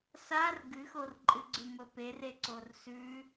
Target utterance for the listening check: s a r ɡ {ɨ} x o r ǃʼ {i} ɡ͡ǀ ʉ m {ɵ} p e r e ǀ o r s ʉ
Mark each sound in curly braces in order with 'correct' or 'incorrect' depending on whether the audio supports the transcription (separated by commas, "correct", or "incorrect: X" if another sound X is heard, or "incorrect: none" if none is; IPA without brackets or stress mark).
correct, incorrect: ɨ, correct